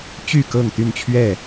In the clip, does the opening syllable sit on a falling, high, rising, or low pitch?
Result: falling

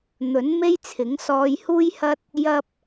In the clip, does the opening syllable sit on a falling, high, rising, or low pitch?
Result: rising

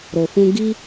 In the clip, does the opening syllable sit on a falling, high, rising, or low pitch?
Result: low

